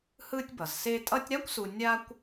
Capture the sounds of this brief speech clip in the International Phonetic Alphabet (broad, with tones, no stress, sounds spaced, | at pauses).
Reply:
h ɯː˦ tʲ b ʌ˩ z s e˦ tʼ ʌ˦ tʲ ɾ a˥ kʷ s u˨ nʲ a˦ kʷ